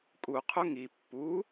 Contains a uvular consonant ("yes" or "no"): yes